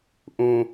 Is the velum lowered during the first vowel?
yes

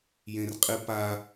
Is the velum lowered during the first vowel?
yes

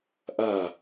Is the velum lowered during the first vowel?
no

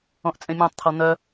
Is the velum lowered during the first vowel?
yes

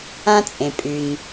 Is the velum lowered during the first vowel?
yes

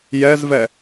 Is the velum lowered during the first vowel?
no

